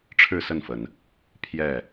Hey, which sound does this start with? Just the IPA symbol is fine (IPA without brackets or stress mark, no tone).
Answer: ʈ͡ʂʰ